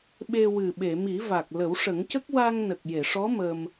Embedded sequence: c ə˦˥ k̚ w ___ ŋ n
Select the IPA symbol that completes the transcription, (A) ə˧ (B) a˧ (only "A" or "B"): B